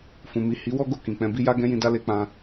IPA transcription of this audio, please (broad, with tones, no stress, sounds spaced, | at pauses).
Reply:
f ũ˨ m i˨ h i˨˦ w ɔ˦ ɡ o˦˨ k ĩ˨ k͡p ɛ̃˧ b i˦ j a˦ ɡ ɛ̃˦ j ĩ˧ d a˦ l e˧ k͡p ã˧